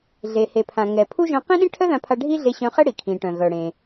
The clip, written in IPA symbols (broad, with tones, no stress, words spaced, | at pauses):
ɮe˩ he˩pʰã˩ŋɛ˩ pʰu˥ ʒœ̃˧qĩ˥ɗĩ˥ ʈʰœ˥ðã˧pʰa˧ ɖʱi˥ɮe˧ɕœ̃˧χɛ˥ ɽi˩kʰĩ˩ʈœ̃˩ ɣœ˩ɽẽ˩